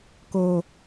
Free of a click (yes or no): yes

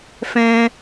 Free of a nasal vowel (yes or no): no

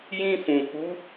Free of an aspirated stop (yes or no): yes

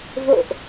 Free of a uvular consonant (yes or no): yes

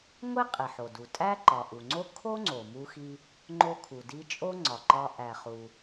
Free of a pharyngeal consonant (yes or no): no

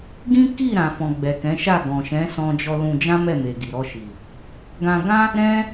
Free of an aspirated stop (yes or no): yes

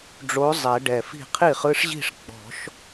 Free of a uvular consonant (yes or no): no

